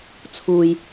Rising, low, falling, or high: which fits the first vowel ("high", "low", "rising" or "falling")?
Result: low